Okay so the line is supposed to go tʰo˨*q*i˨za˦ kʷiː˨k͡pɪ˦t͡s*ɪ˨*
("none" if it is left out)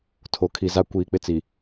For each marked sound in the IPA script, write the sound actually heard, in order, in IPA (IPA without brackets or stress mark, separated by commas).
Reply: kʰ, i˨